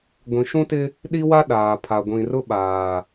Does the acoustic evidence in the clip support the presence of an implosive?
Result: yes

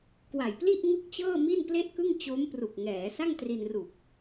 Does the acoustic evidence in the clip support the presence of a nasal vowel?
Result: no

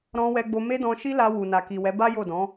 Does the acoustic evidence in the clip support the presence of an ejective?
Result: no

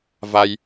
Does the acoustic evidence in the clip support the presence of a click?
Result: no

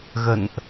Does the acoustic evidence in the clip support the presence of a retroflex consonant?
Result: no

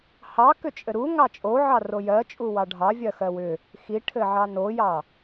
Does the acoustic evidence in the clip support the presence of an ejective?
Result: yes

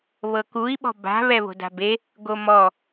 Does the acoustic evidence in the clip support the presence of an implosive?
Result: yes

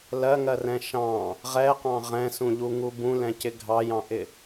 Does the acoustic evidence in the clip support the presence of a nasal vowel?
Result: yes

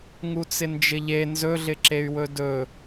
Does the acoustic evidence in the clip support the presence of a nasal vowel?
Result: no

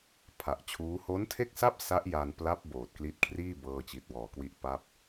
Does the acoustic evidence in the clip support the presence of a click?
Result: no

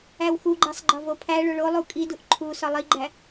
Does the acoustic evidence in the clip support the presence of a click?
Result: yes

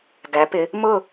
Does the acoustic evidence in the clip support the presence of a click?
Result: no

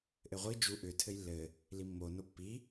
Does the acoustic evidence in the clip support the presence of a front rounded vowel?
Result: yes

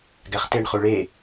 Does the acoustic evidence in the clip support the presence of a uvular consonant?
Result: yes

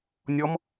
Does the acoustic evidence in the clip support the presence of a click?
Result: no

